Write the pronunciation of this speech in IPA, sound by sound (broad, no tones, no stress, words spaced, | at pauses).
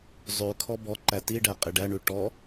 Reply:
zˤʉkʰɔ bɔǃæ tiɖæ qʼɪɖæɳʉ ʈɔ